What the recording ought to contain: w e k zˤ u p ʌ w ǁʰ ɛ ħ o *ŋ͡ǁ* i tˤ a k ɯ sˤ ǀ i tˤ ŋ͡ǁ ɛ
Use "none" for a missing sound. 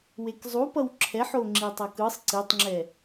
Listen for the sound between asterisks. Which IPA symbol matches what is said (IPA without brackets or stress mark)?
ŋ͡ǁ